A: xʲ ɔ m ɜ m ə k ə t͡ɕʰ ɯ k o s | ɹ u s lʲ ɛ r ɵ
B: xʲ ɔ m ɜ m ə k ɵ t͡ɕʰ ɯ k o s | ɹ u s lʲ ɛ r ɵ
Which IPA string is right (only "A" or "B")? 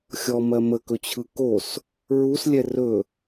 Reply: B